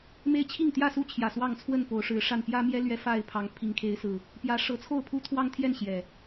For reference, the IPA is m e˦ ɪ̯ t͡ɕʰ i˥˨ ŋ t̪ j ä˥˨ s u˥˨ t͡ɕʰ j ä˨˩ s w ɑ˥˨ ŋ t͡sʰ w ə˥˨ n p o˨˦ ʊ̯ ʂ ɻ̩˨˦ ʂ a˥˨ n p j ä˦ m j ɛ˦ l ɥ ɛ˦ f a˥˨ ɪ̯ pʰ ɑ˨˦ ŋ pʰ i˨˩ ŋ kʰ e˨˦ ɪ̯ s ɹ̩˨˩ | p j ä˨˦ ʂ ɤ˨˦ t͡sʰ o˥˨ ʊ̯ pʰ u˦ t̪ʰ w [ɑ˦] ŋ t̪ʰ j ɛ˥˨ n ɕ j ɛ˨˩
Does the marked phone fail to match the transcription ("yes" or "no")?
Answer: no